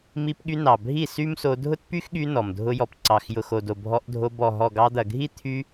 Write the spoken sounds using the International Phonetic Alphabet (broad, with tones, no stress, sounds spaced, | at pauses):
m i˧ p ɠ y˧ n ɑ˨ bʱ i˦˨ s y˦ m s o˧ dʱ ʊ˦ t p y˦ x ɠ y˧ n ɔ˨ m dʱ ʊ˧ j ɔ˨ p ǀ ɑ˨ x j ʊ˨ x o˨ d o˨ bʱ ɔ˧ ʔ dʱ o˧ b ɔ˨ ɦ ɔ˨ ɡ ɑ˧ d̪ ɐ˨ ɡʱ i˦ t̪ʰ y˧